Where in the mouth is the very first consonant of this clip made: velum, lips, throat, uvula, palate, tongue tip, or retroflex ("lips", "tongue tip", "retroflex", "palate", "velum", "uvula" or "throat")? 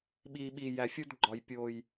lips